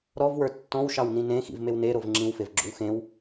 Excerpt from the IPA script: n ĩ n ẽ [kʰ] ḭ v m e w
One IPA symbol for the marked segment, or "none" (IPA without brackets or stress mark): x